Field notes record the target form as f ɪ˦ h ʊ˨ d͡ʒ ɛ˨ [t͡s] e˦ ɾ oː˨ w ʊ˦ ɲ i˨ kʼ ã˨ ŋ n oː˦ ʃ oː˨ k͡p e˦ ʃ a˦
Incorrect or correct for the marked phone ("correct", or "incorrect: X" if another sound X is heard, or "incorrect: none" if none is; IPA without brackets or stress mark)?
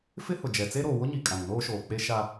correct